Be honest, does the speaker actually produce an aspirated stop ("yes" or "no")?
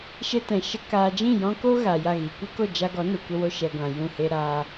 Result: no